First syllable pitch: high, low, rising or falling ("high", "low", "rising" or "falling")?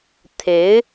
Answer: rising